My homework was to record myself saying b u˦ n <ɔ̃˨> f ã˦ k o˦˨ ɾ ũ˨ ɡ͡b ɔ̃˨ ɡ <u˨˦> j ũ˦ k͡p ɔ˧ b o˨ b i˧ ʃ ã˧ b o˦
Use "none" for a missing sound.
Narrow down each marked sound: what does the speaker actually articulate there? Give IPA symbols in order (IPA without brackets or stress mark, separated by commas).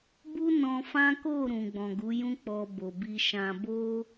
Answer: ɔ̃˧, u˨˦